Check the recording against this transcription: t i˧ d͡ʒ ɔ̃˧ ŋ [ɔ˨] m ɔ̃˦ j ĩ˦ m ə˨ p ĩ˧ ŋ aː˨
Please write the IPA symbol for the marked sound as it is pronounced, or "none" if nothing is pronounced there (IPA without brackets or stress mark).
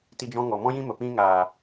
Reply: ɔ˨